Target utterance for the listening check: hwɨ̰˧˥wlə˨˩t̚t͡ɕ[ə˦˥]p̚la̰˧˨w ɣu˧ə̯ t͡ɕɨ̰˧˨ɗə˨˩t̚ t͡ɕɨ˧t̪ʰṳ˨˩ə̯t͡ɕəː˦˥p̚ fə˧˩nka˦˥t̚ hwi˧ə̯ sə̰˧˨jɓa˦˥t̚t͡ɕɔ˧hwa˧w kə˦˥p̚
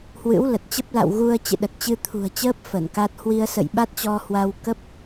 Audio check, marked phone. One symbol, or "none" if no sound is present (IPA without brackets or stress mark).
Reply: ə˦˥